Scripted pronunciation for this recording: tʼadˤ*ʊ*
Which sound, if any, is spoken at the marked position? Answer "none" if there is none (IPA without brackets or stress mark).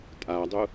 ʊ